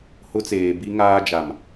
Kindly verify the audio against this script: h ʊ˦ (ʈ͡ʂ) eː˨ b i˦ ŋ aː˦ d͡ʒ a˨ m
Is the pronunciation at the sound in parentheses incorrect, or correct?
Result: incorrect